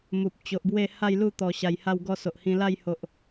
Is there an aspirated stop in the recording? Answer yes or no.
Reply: no